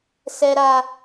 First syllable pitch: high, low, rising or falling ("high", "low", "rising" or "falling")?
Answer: low